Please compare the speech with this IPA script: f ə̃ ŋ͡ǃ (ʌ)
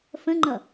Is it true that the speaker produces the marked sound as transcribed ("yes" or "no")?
yes